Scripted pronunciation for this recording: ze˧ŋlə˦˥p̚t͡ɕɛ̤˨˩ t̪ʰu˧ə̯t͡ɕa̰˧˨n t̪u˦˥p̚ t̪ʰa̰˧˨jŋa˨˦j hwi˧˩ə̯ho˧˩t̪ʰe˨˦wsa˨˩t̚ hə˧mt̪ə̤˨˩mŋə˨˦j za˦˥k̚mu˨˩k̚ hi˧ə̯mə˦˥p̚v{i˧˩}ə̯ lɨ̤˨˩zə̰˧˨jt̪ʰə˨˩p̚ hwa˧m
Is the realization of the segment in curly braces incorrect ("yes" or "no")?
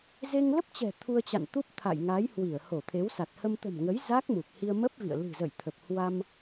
yes